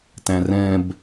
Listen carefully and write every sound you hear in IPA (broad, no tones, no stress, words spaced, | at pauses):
tæ̃rɛ̃b